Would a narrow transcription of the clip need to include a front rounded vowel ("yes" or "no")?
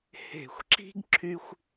yes